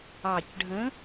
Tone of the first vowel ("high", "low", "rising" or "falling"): low